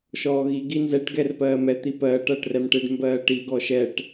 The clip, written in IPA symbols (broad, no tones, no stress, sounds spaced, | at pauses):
ʃ ɔː ɣ i ɡ i n z ɛ ʈ ɡ ɛ r p ɜː m ɛ t̪ i p ɜː ʈ ɐː ʈ r ɛ m ʈ e ɖ m b ɜː ʈ i ɡ ɔ ʃ ɛ ʈ